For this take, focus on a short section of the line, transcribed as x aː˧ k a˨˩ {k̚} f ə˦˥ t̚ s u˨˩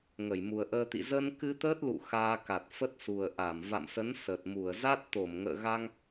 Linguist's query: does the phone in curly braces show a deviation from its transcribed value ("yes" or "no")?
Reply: yes